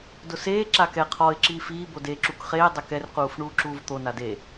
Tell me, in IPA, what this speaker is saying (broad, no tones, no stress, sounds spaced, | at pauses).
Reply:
d ʊ s eː ǁ a k ɛ qʰ ɔ ɪ̯ ǁ iː f iː b o d e ǁ u k χ eː dˤ e k ɛ r q uː f ɳ uː ǁ uː v t̪ o n a d e